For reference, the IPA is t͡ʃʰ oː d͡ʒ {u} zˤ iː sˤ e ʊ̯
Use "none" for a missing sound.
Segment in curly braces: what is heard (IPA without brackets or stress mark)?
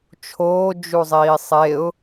u